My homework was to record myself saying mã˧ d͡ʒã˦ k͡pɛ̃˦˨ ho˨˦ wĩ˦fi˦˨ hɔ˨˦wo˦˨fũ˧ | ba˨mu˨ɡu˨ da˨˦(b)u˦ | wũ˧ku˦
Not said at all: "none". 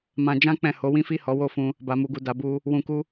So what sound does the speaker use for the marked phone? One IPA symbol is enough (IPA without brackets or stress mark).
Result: b